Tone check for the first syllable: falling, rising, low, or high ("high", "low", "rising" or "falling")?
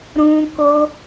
high